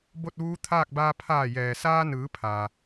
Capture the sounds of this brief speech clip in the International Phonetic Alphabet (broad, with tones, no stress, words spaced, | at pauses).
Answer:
bo˥˨t̚ʋuː˧˥t̪ʰaː˥˨k̚baː˧ pʰaː˧˩jɛː˩saː˧nɯː˩˧ pʰaː˩